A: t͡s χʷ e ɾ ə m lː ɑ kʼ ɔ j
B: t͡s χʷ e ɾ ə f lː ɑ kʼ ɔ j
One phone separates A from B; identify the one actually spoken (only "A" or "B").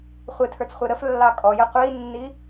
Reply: B